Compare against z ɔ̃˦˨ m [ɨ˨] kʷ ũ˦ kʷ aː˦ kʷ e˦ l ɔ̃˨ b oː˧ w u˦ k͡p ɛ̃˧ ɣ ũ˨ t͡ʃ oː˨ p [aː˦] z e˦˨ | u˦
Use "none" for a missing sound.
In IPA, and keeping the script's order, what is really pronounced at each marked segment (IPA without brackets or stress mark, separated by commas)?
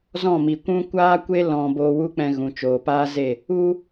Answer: i˨, aː˦